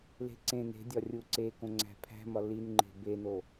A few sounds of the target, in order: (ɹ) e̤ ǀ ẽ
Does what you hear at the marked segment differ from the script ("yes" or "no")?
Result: yes